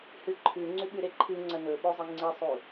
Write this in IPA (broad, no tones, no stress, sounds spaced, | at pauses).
h ɨ ǃʰ ʉ ŋ͡ǀ ʉ ɓ ʉ ɾ e ǃʰ ɨ ŋ͡ǀ ɐ n ɵ ɓ o zˤ i ŋ͡ǀ i sˤ u